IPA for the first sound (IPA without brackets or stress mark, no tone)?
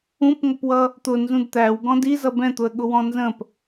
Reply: ũ